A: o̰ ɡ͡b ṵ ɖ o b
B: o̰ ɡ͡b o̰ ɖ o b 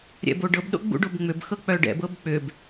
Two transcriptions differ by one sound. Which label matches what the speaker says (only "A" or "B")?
A